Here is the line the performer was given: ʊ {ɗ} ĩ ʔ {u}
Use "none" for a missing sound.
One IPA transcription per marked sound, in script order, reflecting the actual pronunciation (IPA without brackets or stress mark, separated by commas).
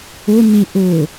n, ʊ